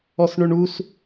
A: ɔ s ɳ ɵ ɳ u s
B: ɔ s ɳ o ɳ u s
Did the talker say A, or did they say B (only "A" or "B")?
A